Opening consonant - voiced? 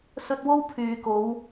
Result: no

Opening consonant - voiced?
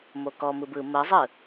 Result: yes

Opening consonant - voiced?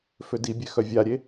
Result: no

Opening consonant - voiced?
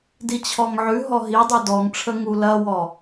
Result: yes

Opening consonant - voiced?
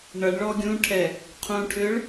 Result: yes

